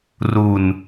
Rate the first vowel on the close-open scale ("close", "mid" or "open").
close